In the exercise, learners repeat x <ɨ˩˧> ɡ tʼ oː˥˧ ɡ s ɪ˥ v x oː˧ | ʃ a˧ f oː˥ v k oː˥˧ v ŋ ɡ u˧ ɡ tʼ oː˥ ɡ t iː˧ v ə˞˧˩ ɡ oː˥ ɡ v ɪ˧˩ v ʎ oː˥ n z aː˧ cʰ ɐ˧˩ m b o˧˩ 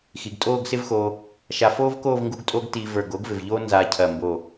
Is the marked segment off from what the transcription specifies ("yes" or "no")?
yes